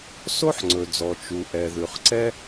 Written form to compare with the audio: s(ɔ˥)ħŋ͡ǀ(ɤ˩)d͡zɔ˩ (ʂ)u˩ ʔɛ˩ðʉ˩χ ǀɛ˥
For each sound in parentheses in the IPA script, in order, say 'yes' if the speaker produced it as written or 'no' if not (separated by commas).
no, no, no